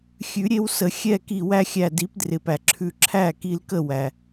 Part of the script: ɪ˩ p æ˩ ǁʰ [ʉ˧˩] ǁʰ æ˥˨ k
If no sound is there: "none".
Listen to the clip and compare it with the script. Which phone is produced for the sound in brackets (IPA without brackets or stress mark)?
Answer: ʉ˧˩